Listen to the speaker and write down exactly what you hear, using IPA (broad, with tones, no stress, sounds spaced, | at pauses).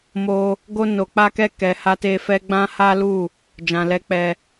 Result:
m o˧ | ɡ o˧ n o˨ k͡p a˧ k ɛ˧ k ɛ˨ h a˧ t e˧ f ɛ˧ ɡ͡b ã˦ h a˦ l u˦˨ | d͡ʒ ã˨ l ɛ˧ k͡p ɛ˧